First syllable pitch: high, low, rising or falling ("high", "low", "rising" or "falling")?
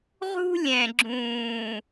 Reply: high